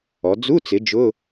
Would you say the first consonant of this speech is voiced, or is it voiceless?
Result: voiced